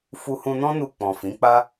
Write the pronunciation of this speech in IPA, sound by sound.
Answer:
f u˧ h ũ˧ n ɔ̃˦ n u˧ k͡p ɔ̃˨ f ĩ˨˦ k͡p a˦

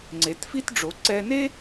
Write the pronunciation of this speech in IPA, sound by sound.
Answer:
ŋ͡ǀ e˩˧ t f i˥ t ɖ͡ʐ o˩˧ ǀ ɛ˧ n e˥

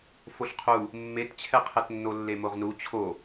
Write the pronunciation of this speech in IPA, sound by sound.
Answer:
f o ɬ qʰ u | mː e t t͡ɕʰ ɛ qʰ ɛ t nː o lː e m o ʁ n u t͡ɕʰ o

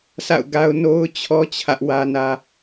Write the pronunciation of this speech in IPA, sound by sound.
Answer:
sʰ a̰˦˨ ʊ̯ ɡ a˦ ʊ̯ n o˦ ʊ̯ t͡ɕʰ ɔ˦ t͡ɕʰ ä˦ ʔ w ä˦ n ä˦

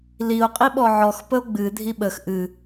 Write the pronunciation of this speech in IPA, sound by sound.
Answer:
l i o̯ qʼ i ɓ ɔ ʕ ɔ x p ə o̯ ɡ͡b ɨ dʱ i ɓ ə x ʔ ɨ

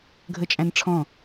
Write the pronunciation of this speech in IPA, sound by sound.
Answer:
ɡʱ ə t͡ʃʼ æ̃ n ʈ͡ʂʰ ɔ̃

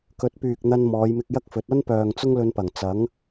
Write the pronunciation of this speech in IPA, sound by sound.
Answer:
k ɵ˨˥ t̚ p yː˨ k̚ n̪ ɐ˧ n m ɔː˨˧ j m ɪ˧ k̚ j ɐ˥ k̚ f ɵ˨˥ t̚ ɐ˥ n p œː˨ ŋ t͡s ʊ˥ ŋ l ɵ˧ n p ɐ˨˩ ŋ t͡s ɐ˨˥ ŋ

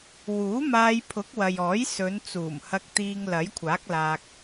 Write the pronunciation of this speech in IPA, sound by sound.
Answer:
w uː˨˥ m aː˧ j pʰ ʊ˨˥ k̚ w ɐ˨ j ɔː˨˥ j s ɵ˨˧ n t͡s uː˨˩ m h ɐ˧ k̚ t̪ iː˧ ŋ l ɐ˨˥ j kʷʰ aː˨˥ k̚ l aː˧ k̚

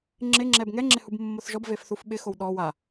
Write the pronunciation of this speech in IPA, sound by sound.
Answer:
ŋ͡ǁ ɪ ŋ͡ǁ ɛ b ŋ ɛ ŋ͡ǁ ɪ h u b mː o θ ʒ ɔ b v e f θ u f ɓ ɪ x o w ɗ ɔ w a

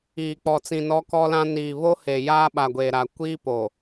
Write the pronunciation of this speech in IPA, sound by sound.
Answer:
iː˨ k͡p ɔ˨ t͡s ĩ˨ n ɔ˦ k ɔ˦ l ã˦ n iː˨ β o˦ h e˨ j aː˦ ɓ a˨ ɡʷ e˨ ɾ a˨ kʷ iː˦ p o˨

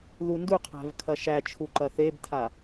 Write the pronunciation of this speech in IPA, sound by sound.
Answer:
ð u n d u qʰ æ̤ v kʰ ɐ ʃ æ t͡ʃʰ u ǃ ɐ θ e b tʰ a

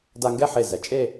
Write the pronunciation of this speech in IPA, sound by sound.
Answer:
d a˧ ŋ ɡ ɛ˥˧ ħ e˧˩ z ɛ˩˧ t͡ʃʼ e˥˧

